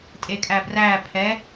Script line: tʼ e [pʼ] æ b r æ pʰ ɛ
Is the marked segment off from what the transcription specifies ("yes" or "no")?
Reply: yes